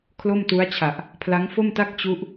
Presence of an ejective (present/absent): absent